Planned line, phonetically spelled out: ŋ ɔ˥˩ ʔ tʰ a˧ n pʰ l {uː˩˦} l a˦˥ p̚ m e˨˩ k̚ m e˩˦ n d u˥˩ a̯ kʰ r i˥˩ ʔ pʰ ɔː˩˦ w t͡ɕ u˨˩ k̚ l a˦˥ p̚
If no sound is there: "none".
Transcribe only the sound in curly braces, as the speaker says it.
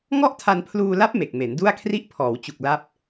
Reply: uː˧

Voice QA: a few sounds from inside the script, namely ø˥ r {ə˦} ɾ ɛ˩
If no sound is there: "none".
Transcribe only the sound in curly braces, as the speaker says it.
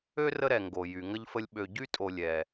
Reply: ə˦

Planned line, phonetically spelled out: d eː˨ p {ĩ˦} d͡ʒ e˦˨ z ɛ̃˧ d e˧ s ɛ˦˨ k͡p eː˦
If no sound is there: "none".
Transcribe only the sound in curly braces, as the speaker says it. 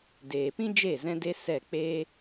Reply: ĩ˦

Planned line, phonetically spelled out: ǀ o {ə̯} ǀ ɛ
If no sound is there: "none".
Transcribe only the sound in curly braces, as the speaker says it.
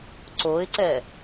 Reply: ɪ̯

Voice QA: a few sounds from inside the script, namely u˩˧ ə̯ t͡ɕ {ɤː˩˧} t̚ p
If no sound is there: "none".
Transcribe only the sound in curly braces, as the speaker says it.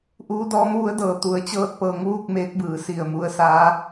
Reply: ɤː˧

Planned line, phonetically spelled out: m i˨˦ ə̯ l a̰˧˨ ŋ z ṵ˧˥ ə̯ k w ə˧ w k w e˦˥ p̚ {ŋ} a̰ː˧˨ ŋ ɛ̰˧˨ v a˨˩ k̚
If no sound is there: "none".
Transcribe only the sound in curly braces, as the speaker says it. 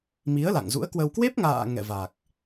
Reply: ŋ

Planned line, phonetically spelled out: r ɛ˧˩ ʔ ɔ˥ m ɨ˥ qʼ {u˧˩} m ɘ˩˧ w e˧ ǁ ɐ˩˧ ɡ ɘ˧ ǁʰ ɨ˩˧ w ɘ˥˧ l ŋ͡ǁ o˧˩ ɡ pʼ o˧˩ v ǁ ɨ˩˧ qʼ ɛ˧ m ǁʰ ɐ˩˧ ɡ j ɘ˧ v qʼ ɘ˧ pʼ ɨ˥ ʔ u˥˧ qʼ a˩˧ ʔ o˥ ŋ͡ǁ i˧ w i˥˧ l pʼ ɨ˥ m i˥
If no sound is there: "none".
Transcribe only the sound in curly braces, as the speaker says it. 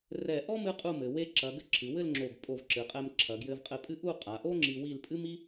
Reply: u˥˧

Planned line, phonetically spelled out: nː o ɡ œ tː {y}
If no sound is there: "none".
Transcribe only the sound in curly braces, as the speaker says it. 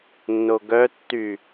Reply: y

